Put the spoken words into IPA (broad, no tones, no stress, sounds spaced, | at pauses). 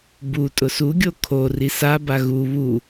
b u tʼ ʊ s u ɡʲ o kʰ o r i s a b a ɣ u β u